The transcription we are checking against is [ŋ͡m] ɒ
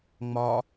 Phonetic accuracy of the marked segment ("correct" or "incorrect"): correct